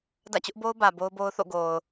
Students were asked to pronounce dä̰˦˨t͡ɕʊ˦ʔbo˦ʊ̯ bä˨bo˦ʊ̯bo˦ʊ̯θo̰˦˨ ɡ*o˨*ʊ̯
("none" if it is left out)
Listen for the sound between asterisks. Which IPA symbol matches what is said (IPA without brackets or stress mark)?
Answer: o˨